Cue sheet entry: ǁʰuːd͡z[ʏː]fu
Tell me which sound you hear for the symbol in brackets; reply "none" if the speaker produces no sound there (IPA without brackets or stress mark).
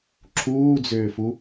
ʏː